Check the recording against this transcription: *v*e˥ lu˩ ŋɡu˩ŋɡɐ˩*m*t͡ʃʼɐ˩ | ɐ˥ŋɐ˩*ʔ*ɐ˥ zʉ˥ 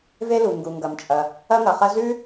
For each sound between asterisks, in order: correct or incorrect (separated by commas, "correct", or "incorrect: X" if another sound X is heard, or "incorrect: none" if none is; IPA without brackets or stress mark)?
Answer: correct, correct, incorrect: χ